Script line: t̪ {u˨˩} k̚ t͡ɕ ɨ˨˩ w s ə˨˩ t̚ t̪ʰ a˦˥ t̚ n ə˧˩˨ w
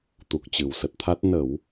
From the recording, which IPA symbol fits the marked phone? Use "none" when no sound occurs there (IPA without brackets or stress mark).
u˨˩